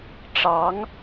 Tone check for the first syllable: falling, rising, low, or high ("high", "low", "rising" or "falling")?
rising